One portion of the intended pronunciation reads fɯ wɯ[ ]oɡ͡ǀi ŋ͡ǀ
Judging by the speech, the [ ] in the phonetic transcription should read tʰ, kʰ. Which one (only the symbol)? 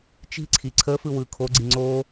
kʰ